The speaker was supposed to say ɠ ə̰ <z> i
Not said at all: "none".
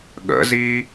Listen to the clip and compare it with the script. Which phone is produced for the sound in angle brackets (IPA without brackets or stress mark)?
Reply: z